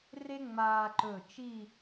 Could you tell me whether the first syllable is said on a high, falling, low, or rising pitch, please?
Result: high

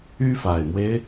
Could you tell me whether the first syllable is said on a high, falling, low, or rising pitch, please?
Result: high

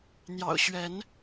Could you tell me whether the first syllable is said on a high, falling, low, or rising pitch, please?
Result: low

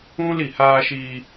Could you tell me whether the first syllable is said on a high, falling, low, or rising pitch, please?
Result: high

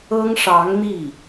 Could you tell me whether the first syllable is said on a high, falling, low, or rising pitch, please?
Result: high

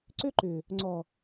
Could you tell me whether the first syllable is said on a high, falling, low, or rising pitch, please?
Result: high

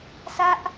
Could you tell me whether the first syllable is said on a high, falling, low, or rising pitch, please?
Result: high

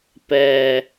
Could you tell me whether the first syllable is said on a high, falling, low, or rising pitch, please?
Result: low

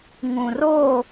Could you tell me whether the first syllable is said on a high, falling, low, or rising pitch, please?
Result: low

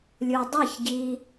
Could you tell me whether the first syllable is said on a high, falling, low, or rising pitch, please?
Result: low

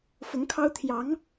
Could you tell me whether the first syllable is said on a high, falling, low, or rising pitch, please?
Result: rising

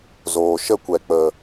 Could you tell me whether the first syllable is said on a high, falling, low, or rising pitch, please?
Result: low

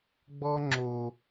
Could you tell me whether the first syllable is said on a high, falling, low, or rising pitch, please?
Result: high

